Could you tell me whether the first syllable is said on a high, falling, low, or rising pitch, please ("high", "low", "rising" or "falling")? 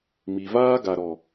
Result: low